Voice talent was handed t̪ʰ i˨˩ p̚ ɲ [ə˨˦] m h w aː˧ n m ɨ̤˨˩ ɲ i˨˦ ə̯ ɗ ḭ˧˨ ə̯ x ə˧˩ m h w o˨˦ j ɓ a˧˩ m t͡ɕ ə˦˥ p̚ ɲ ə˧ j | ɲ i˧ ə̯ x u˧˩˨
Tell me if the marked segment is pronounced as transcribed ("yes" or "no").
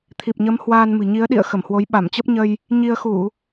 yes